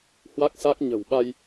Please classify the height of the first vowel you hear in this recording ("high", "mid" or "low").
low